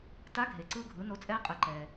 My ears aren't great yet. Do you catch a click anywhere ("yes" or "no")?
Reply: yes